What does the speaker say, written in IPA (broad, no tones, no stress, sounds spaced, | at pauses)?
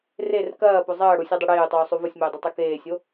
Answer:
r e r k ɐː p o zˤ ɐː ɽ u sʲ ɨ dˤ ɨ ɽ eː y̯ tˤ uː sˤ u v o sʲ m e y̯ dˤ i tˤ u k eː sʲ o